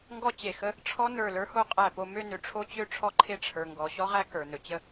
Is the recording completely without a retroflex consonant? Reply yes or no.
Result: no